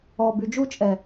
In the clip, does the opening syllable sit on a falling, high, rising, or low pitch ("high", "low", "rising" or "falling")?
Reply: low